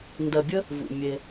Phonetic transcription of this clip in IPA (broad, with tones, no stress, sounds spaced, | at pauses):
n d ɜ˨ bʲ ə˦ | v ṵ˨ mʲ e˧